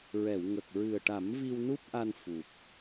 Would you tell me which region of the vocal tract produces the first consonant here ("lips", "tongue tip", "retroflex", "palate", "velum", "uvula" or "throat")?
tongue tip